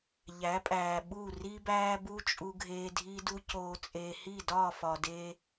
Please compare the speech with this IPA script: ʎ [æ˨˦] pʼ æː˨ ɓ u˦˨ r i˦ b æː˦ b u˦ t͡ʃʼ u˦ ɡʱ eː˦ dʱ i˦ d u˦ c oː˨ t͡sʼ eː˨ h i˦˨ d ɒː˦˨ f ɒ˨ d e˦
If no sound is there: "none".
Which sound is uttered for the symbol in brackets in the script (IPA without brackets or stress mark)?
æ˨˦